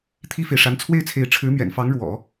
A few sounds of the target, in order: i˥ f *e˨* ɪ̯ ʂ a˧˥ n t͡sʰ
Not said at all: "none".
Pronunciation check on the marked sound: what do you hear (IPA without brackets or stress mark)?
e˨